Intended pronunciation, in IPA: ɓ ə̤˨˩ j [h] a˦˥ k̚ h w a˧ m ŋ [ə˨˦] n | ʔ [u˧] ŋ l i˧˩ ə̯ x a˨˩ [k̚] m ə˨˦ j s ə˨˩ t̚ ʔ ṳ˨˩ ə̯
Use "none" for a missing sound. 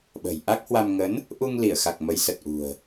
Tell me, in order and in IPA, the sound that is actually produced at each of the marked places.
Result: ʔ, ə˨˦, u˧, k̚

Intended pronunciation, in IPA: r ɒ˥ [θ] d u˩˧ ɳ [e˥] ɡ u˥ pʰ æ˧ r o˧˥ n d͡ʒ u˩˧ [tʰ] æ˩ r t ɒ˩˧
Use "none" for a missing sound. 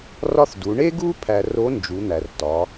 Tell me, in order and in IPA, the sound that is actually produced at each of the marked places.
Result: θ, e˥, n̪

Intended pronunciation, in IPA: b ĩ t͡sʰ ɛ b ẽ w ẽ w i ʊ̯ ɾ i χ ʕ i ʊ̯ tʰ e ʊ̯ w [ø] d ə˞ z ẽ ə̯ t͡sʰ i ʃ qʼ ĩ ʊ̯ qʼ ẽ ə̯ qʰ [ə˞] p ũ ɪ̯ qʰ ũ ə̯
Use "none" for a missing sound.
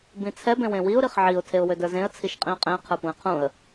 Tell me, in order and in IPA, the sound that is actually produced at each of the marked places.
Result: ø, ə˞

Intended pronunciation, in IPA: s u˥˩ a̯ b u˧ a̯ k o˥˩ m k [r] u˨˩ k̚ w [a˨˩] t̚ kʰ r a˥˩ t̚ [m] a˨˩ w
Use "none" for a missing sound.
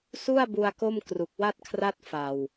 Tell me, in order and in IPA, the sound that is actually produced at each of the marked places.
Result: r, a˥˩, f

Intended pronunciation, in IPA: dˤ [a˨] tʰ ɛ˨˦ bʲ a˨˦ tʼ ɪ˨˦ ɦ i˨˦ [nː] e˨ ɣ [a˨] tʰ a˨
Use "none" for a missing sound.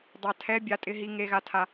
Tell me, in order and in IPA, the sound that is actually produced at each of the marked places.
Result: a˨, ŋ, a˨

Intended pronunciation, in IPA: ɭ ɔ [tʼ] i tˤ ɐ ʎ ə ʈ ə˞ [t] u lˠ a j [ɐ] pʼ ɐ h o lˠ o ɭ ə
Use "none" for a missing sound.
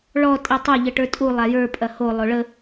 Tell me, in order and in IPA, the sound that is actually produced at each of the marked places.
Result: tʼ, tʼ, ə˞

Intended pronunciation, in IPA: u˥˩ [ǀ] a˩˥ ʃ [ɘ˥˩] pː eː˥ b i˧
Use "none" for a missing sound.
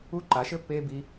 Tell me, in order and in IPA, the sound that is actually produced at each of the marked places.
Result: ǃ, ɘ˥˩

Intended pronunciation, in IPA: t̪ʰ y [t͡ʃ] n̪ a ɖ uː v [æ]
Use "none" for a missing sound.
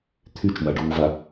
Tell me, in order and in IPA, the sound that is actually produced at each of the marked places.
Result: t͡ʃ, a

